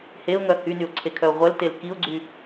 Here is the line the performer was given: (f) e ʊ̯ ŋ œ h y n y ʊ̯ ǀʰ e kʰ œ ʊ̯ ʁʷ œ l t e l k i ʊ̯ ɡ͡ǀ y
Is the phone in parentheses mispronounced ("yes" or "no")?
yes